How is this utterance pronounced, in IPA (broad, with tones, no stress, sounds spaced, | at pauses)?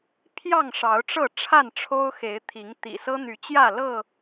pʰ j ɑ˥˨ ŋ ʂ ɑ˨˦ ʊ̯ ʈ͡ʂ ɤ˥˨ ʈ͡ʂʰ a˥˨ n ʈ͡ʂʰ o˦ ʊ̯ x e˨˦ ɪ̯ t̪ʰ i˨˦ ŋ t̪ ḭ˨˩ s ɤ˦ n̪ y˨˦ t͡ɕ j ä˥˨ l ɤ˥˨